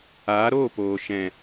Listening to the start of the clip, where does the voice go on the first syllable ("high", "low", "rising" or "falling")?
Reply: rising